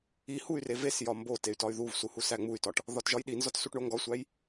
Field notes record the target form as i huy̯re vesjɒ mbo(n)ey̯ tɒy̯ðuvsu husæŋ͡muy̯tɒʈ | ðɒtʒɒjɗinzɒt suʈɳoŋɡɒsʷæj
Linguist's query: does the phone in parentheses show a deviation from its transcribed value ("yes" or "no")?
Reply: yes